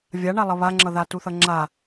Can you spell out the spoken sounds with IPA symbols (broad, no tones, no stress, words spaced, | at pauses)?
vʲaɳa lˠʌβaŋ͡ǁʌða tuθʌŋ͡ǁa